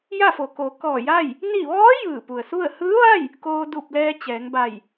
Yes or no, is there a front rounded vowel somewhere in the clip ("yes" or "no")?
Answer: no